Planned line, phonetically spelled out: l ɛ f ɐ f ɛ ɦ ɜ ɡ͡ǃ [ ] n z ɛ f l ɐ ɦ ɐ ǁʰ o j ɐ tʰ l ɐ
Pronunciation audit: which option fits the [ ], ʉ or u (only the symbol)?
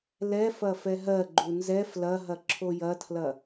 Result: u